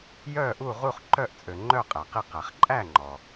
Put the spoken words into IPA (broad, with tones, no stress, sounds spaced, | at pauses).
j œ˥˨ ʔ u˥˨ ʁ u˥˨ χ ǃ œ˥˨ ʔ t͡sʼ ø˩ ŋ͡ǃ œ˥˨ qʼ æ˩ q i˥˨ q æ˩ χ ǃʼ æ˥˨ ŋ͡ǃ ɔ˩